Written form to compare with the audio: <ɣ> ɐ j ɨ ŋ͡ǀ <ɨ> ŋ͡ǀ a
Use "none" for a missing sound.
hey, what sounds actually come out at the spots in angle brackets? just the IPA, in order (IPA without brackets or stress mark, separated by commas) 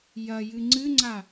j, ɨ